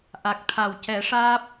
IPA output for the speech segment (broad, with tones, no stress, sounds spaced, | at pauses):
ʔ a˨˩ k̚ t̪ʰ a˨˩ w c ɛ˨˩˦ ʂ aː˦˥ p̚